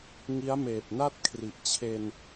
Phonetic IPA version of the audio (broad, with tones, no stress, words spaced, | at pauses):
ŋi˦˥a̯meː˨˩p̚na˥˩t̚kʰri˨˩ʔ t͡ɕʰe˧n